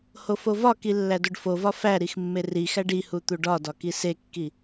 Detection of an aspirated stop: absent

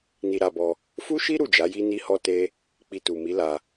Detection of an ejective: absent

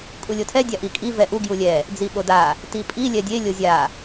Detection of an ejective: present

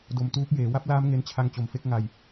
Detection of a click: absent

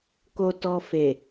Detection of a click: absent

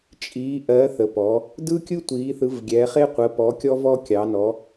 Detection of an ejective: present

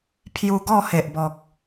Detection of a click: absent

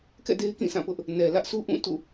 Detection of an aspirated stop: absent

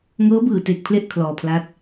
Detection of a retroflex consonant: absent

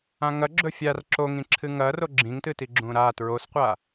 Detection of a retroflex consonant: absent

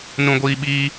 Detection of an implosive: present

